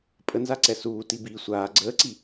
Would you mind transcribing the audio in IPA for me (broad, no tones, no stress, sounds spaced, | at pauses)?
pʼ ə n z a ǀ ɛ s uː t i b iː sʷ aː ɡ͡ǀ əː ǀ i